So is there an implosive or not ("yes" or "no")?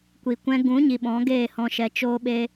yes